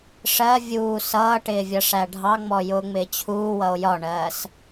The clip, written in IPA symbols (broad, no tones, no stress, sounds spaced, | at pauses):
ʂ ɜ vʲ uː s ʌː ʈ ɪː vʲ ʌ ʂ æ ɖʱ ɑ ŋ͡m ɔ j ʊː ŋ͡m ɪː t͡ɕʰ uː w ʌ o̯ j ɒ ɳ ɜː s